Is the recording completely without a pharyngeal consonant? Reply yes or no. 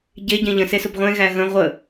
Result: yes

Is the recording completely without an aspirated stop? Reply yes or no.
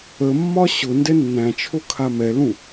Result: no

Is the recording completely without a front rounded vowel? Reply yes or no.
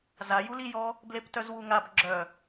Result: no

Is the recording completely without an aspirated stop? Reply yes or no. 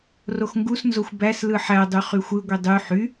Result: yes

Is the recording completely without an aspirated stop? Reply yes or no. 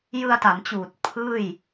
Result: no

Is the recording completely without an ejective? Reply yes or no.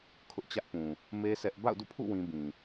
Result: yes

